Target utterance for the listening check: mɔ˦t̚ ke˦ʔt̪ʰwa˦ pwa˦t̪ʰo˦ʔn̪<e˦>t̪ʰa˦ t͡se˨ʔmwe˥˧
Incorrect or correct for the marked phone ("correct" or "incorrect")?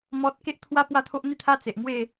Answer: incorrect